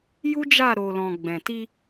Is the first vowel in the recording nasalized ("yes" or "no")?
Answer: no